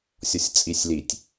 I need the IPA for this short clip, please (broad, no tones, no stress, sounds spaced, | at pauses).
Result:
sʲ ɔ sʲ t͡sʼ i sʲ l i tʲ